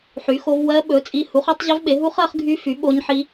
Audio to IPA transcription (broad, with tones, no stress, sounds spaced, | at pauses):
ħ y˨˥ x o˦˥ v w ɜ˦˥ ɓ ɵ˨˥ t͡sʼ i˦˥ h u˨˥ χ o˦˥ tˤ ʑ œ˦˥ v ɓ e˨˥ ɦ u˦˥ χ ɜ˨˥ χ ɡʱ y˦˥ f y˨˥ ɓ o˦˥ ɲ ħ i˦˥